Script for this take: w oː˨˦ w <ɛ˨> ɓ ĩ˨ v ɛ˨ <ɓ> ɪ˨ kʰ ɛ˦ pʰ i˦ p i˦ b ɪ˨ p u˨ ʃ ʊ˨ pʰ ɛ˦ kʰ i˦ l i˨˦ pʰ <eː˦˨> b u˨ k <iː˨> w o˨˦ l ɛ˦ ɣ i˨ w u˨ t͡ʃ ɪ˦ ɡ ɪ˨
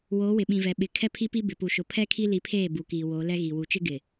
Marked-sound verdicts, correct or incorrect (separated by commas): incorrect, correct, correct, correct